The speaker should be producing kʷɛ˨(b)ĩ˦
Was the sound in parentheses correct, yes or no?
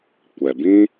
yes